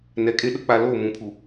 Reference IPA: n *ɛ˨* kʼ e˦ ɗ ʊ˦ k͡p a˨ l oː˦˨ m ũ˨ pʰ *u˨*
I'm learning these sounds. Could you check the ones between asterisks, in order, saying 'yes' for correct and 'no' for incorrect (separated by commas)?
yes, yes